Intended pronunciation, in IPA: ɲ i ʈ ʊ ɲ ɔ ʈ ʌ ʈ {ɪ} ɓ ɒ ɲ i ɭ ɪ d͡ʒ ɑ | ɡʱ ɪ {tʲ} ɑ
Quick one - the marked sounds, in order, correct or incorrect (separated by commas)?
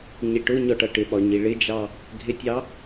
correct, correct